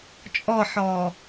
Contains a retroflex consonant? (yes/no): no